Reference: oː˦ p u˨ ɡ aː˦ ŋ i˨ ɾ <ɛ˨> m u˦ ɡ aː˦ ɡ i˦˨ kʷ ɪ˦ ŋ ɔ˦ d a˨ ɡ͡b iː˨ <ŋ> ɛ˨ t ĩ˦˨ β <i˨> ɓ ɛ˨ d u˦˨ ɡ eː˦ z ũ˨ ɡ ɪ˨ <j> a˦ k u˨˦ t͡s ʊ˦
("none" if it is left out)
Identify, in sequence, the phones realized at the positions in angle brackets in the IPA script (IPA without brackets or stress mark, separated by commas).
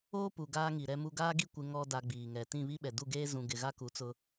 ɛ˦, ŋ, i˦, ɣ